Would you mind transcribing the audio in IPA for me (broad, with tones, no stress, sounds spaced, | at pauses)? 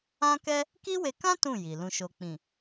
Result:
ã˦ k ɛ˦ | k i˦ w e˧ k ã˦ t ũ˦˨ j i˨ l ũ˨ ʃ o˨ k͡p ĩ˨